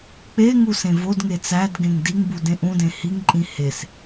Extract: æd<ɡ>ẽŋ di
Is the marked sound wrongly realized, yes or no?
no